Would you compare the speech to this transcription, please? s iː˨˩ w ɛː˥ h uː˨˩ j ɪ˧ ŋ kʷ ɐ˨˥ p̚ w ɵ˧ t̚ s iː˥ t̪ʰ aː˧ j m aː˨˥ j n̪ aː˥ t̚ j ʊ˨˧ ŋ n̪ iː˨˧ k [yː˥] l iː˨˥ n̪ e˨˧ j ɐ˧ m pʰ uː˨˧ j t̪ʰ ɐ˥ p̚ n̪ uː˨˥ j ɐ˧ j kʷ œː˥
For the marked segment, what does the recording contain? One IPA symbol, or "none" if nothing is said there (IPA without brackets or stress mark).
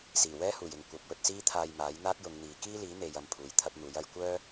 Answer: iː˥